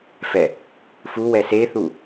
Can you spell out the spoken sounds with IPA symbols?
f ɛ | f u w ɛ s e θ u

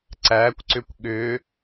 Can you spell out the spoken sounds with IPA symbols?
ǀ æ kʷ ǀ ʏ kʷ ɠ ʏ

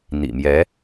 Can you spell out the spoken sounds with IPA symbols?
n̪ ḭ˨˩ m j ɛ˧˥

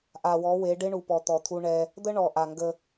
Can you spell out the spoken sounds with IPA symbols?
ʔ a˨ w ɔ˨˦ w e˨˦ ɖ ɪ˦ ɳ u˨ p ɔ˨ t̪ ɔ˨ t̪ʰ u˦ ɳ ɛ˦ | d̪ ə˦ ɳ ɔ˨ ʔ a˨ ŋ ɡ ə˦

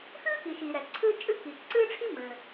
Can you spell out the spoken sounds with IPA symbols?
x ɨː˥ k i˩ ʃ iː˩ ɾ ɛ˩ ǀʰ ɨː˥ t͡ʃʼ ɨ˥ k iː˩ k ǀ ɨː˥ ʈ͡ʂʰ i˥ m ɘ˩

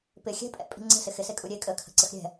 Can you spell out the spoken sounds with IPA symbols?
p ɪ xʲ ɛ̤ pʼ ɛ̰ pʼ i̤ ŋ͡ǀ ə̤ s ɪ x ɪ s e kʼ u ɾʲ e kʼ ə kʰ ə̤ ǀ ə x ɾʲ ɛ̤

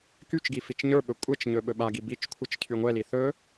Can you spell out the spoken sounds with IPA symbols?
k y t͡ʃ ɡ i f i t͡ʃ ɲ ə˞ ɓ ɵ kʷʼ ɛ t͡ʃ ɲ ɵ ɓ ɵ ɓ a ɡ i b i t͡ʃ kʷʰ ɨ t͡ʃ cʰ y ŋʷ ɛ l i θ ɵ

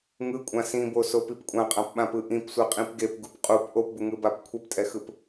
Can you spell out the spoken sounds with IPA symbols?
ŋ ɯ kʷʼ ã s ĩ b o s o p i p kʷʼ ã qʼ ã p ɓ ã p ɯ ʔ ĩ p sʷ ɛ qʼ ĩ p ɡ e p ɡ u p qʼ u p ʔ o p b u ŋ ɯ b a p kʷʰ ɛ p tʼ ɛ x ɯ p

